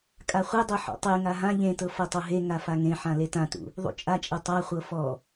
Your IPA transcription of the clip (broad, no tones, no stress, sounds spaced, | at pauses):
kʼ a χʷ e dˤ ɤ ħ ɔ̰ tˤ e ŋ a ɦ ã ʎ ẽ t ɤ f ɤ tˤ ɤ ɦ e ŋ a f a ŋ ẽ ħ ã l e t ã t ṵ | ðˤ ṵ t͡ʃʼ a t͡ʃʼ ɤ tˤ a χʷ ɤ f ɔ